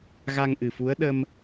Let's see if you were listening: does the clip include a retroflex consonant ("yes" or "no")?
no